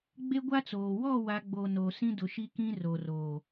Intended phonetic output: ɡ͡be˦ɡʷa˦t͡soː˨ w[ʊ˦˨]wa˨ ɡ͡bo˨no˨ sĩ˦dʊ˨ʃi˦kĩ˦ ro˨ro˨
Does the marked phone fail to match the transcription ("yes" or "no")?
yes